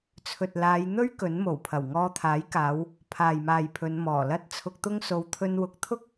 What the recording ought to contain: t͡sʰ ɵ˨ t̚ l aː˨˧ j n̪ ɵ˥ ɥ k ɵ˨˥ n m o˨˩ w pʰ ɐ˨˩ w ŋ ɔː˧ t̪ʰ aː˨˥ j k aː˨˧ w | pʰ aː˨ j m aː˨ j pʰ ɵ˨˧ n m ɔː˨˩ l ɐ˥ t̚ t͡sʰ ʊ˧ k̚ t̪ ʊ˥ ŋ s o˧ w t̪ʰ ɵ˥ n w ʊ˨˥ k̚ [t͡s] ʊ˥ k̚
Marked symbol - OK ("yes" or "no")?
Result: no